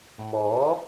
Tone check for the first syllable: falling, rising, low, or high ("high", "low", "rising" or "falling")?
rising